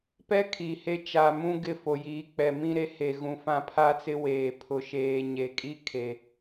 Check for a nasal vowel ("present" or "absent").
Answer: present